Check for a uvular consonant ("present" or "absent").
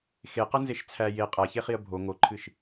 present